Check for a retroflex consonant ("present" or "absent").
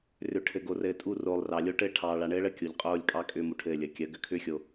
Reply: present